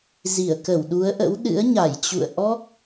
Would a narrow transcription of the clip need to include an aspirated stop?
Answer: no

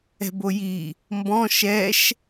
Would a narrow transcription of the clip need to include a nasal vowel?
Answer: yes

